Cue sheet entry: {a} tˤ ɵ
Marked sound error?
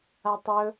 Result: no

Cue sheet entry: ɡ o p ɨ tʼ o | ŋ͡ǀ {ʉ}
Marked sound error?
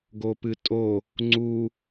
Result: yes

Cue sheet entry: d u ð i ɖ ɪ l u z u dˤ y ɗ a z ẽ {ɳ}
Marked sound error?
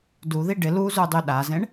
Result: no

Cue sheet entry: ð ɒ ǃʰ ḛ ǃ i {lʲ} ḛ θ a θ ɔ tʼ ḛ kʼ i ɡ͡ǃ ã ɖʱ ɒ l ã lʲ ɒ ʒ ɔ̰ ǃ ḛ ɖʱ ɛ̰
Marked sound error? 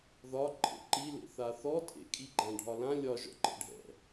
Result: yes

